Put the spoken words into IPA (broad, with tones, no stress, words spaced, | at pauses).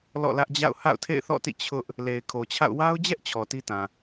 lɔ̰˦˨lä˦ʔd͡ʑa̰˦˨ʊ̯ ha̰˦˨ʊ̯tʰḛ˦˨ɪ̯θɔ̰˦˨tḭ˦˨ t͡ɕʰʊ˦ʔ | le˨ɪ̯kʰo˨t͡ɕʰa̰˦˨ʊ̯ wa˦ʊ̯d͡ʑɛ˦ʔ t͡ɕʰɔ˨ti˦tã˨